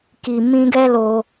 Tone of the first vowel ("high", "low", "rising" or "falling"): low